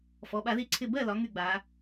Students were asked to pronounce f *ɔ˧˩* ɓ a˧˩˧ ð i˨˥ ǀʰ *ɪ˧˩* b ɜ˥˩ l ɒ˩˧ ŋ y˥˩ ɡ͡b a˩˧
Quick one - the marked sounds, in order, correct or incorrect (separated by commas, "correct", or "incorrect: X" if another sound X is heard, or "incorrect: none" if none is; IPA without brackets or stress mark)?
incorrect: ɔ˩˧˩, correct